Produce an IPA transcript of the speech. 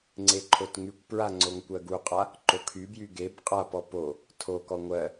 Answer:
ŋ͡ǀ e ǃʰ o t ŋ y kʷ p ɹ a ŋ͡ǀ o ŋ kʷ ɜ ɡ u qʼ a | ǃ o kʰ y b j y ɡ e b qʼ a p ɔ p o | tʰ o k ɔ ŋʷ ɜ

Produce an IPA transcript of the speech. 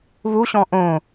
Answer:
β u ɕ ɔ̃ ʔ õ

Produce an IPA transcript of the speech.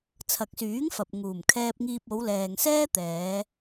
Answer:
t͡sʰ ɐ˨ k̚ s yː˨˥ ŋ f ɐ˨ p̚ ŋ uː˨˩ m kʰ ɛː˧ p̚ ŋ iː˧ p̚ o˨˧ w l ɛː˨ ŋ s ɛː˥ t̪ ɛː˨˧

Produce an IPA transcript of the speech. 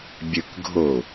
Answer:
bʲ ɨ k ɡʱ o

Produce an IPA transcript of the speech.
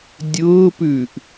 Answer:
dʲ ʊː p ʉː ʔ

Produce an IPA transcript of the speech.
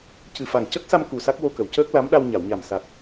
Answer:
c ɨ˨˩ f a˨˩ ŋ c ə˦˥ k̚ s a˧ m k u˨˩ s a˦˥ k̚ w o˧ k ə˨˩˨ w c əː˦˥ k̚ l a˧˥ m ɗ a˧ w ɲ a˨˩˨ w ɲ a˨˩ m s a˨˩ t̚

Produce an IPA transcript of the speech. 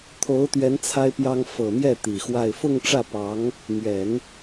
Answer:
t̪ʰ o˧˥ ʊ̯ t̪ ɥ ɛ˧˥ n t͡sʰ a˥ ɪ̯ p j ɑ˥ ŋ f ɤ˨˩ m j ɛ˥˩ t̪ i˨˩ x w a˥˧ ɪ̯ f ʊ˥˧ ŋ ʈ͡ʂ ä˥˩ p ɑ˧˥ ŋ | m ɥ ɛ˨˩˦ n

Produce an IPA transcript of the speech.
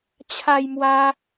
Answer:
t͡ɕʰ a˦ j m w a˦

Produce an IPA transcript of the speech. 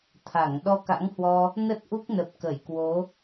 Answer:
t̪ʰ a˧˩ ŋ ɗ ɔ˧ k a̰˧˥ ŋ h w ɔ˧ | n ə˦˥ t̚ ʔ u˦˥ k̚ n ə˨˩ p̚ k ə˧˩ j k w o˨˦

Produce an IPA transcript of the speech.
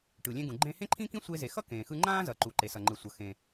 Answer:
ʈ ɯ˩ lʲ ẽ˧ ɡ ũ˩ ɡ͡ǃ ẽ˧ h ẽ˥ ǃʰ ĩ˥ k ĩ˥ sʷ e˧ z e˩ x ʌ˥ k ẽː˩ x ɯ˧ ŋ͡ǃ ãː˥ z ʌ˩ ǃ u˩ ǃ e˩ s ʌ˩ ŋ͡ǃ ɯ˩ sʷ ʌ˩ x ẽ˩

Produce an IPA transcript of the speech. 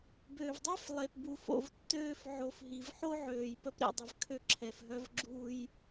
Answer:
b ø˨ v dˤ ɛ˦ f lˠ e˨ p b u˨ f o̰˨ v tː øː˧ f ʕ o˨ f ɦ i˨ v ħ o˦ ʕ øː˨ j p ə˦ p ɾ ḭ˨ dˤ ə˧ v kʰ ø˧ ǁʰ ɛ˨ f ɦ œ˧ v ɡ͡ǁ u˧ j

